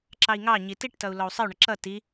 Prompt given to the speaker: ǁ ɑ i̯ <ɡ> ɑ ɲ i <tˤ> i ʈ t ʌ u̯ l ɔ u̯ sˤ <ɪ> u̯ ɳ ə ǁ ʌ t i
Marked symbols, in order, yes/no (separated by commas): no, no, yes